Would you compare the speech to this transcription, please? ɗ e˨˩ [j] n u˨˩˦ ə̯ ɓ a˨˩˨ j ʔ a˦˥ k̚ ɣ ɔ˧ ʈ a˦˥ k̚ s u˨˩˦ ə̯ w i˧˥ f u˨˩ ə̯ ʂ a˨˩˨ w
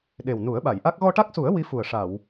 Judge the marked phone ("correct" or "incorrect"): incorrect